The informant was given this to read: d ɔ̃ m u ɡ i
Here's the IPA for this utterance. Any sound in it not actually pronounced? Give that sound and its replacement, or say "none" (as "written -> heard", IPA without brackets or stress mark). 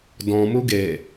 i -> e